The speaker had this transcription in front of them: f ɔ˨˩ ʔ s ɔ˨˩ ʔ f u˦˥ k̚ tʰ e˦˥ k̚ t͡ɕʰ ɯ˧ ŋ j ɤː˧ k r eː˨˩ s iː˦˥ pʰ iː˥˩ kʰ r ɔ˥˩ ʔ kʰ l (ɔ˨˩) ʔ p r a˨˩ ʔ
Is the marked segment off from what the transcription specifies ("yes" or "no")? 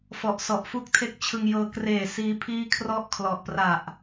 no